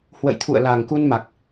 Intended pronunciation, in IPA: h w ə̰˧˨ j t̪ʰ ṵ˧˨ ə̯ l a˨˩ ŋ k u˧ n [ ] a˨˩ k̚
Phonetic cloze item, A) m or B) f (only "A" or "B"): A